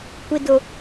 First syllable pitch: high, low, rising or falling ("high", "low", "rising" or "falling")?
low